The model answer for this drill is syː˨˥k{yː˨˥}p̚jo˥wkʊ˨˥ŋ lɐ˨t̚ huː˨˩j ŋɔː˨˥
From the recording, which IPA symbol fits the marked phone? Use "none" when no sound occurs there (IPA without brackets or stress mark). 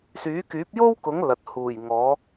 yː˨˥